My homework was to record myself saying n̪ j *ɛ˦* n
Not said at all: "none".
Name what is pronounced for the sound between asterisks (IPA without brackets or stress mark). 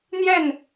ɛ˥˨